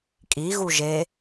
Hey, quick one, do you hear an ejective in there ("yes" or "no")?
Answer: yes